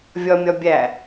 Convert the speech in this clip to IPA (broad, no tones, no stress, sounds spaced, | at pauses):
vʲ ɒ mʲ ɒ bʲ æ